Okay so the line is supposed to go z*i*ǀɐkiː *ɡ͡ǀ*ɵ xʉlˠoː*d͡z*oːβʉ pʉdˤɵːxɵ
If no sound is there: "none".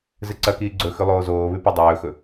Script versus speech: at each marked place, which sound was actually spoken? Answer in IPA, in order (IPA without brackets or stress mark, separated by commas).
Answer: ɨ, ɡ͡ǀ, z